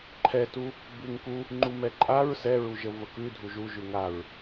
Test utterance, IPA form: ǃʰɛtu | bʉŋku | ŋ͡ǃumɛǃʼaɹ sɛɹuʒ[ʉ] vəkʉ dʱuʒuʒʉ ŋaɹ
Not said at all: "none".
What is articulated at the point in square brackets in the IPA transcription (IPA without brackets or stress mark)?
ə